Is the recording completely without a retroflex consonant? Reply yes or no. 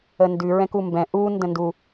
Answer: yes